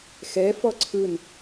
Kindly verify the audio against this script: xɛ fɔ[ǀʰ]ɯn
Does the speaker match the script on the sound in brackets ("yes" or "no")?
yes